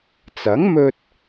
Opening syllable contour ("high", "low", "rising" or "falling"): rising